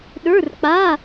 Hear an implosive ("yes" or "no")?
yes